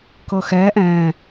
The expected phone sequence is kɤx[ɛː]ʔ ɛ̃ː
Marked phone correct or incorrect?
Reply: correct